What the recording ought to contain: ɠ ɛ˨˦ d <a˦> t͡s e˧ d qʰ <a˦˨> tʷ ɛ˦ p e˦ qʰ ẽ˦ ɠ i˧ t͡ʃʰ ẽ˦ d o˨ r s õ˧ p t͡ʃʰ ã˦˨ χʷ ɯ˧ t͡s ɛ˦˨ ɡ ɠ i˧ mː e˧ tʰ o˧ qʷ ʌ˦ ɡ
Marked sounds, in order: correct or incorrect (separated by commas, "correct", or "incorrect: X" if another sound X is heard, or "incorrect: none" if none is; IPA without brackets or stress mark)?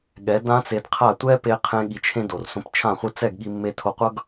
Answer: incorrect: ã˦, correct